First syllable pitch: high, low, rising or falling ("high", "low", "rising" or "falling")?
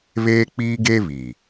high